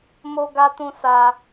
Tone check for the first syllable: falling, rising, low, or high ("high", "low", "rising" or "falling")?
high